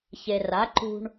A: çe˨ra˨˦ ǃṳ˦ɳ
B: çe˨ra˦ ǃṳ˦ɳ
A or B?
A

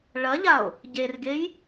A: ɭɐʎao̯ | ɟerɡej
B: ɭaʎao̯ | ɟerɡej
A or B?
A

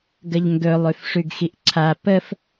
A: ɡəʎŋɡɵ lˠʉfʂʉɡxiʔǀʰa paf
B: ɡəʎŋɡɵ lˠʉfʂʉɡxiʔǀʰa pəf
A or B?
B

